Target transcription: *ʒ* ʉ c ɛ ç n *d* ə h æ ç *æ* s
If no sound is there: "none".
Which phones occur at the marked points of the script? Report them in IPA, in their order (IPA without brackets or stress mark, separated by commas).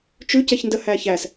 t͡ʃ, d, æ